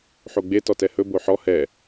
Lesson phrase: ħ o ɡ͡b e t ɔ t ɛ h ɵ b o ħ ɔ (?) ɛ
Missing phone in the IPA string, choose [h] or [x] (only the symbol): h